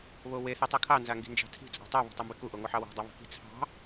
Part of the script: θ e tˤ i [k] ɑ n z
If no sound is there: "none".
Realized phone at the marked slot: kʰ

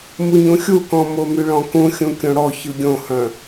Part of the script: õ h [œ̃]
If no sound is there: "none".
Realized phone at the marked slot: œ̃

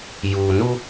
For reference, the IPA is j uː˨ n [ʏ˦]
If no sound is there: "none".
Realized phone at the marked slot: u˦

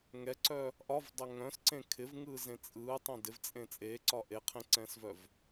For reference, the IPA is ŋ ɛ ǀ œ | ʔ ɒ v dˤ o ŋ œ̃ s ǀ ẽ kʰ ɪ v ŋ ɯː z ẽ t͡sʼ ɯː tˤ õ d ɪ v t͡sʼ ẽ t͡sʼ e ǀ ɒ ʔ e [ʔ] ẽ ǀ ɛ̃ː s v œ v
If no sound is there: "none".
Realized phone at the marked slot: qʰ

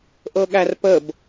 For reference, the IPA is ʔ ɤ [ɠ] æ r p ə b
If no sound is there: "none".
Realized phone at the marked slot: ɠ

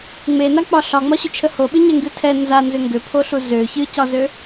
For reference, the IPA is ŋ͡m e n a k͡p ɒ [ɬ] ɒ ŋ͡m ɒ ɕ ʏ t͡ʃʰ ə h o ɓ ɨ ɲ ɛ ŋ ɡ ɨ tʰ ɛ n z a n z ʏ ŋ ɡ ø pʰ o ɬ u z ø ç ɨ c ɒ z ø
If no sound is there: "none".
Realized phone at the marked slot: ɬ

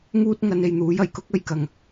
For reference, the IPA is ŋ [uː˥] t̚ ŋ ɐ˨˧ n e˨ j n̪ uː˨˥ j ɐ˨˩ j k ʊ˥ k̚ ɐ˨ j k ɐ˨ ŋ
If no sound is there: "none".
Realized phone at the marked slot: uː˥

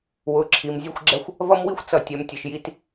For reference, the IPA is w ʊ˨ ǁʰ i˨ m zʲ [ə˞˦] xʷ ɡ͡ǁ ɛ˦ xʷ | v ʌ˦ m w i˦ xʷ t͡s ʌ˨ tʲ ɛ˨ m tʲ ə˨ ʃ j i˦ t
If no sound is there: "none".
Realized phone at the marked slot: ʌ˦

